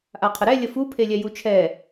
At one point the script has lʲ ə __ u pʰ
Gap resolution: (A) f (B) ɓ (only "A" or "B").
A